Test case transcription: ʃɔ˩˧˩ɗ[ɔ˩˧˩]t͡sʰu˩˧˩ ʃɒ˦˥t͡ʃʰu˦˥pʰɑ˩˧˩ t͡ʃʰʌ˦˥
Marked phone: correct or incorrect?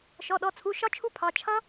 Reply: correct